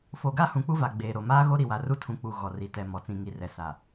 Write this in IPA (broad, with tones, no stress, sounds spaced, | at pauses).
f o˨ ɡ a˦ h ũ˨ k͡p u˦ v a˨ ɡ͡b eː˨ ɾ o˨ m aː˦ ɣ o˦ ɾ i˨ w a˨ r u˦ tʰ ũ˨ k͡p u˨ ɣ ɔ˨ r i˨ t ɛ˨ m ɔ˨ t͡s ĩ˨ ŋ i˨ r ɛ˨ s a˨